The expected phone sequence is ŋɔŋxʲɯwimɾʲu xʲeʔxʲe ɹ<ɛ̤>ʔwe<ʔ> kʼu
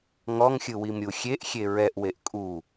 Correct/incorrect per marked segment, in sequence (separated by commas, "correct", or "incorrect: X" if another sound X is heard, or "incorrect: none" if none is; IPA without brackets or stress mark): incorrect: ɛ, correct